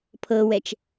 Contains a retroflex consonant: no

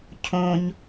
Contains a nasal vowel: yes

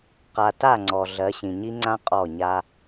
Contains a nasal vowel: yes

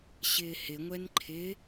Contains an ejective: no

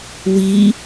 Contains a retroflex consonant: no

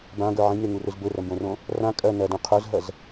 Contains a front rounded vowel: no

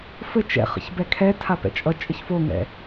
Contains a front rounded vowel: no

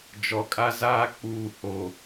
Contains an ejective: yes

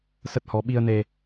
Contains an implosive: yes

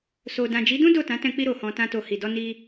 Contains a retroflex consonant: no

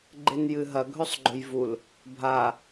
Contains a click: yes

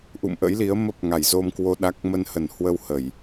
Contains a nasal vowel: no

